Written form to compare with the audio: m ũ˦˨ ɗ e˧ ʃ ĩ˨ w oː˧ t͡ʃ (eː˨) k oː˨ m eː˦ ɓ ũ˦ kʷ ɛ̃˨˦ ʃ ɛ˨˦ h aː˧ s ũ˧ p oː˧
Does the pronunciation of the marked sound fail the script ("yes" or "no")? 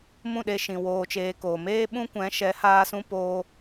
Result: yes